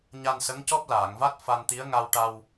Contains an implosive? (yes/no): no